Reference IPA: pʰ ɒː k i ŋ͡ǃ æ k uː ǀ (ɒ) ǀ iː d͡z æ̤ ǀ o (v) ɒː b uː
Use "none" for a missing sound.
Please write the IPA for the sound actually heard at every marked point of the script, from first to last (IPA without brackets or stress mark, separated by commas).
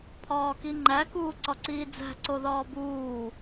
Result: ɒ, ð